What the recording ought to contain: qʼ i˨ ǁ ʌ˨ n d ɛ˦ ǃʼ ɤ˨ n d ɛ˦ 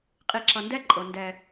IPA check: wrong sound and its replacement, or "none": none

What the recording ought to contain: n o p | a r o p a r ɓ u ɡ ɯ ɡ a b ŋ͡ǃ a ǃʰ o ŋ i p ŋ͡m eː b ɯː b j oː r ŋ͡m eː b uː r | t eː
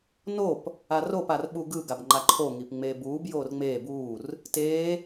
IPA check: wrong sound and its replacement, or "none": ɯː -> uː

